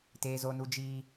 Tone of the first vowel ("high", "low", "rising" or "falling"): high